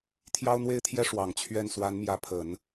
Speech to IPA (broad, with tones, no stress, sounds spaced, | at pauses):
t̪ʰ j ɑ˥ ʊ̯ n̪ w e˥ ɪ̯ t̪ʰ j ɛ˥ ʂ w ɑ˨˩ ŋ t͡ɕʰ ɥ ɛ˥˩ n s w a˧˥ n m j ä˧˥ pʰ ə˨˩˦ n